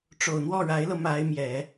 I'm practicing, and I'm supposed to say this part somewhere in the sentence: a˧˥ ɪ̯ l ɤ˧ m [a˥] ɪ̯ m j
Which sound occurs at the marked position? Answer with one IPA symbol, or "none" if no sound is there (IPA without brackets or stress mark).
a˧˥